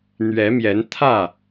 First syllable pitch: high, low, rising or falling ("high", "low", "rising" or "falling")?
rising